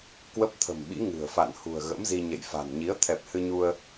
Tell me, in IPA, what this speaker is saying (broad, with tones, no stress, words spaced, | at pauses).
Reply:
kwə˦˥p̚t̪ʰə̤˨˩mɓḭ˧˥ ŋɨ̤˨˩ə̯ fa̰˧˨nhṳ˨˩ə̯ ɣə̰˧˥mzi˧ɲḛ˧˨jfa̤˨˩n ɲi˨˦ə̯ t̪ʰɛ˨˩p̚ hɨ˧ɲu˧ə̯